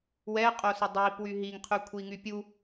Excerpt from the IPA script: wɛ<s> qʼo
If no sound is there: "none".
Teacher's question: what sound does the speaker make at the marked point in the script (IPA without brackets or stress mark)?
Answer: none